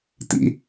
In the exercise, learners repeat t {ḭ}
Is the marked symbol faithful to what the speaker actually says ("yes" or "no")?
yes